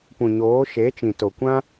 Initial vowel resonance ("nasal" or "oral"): nasal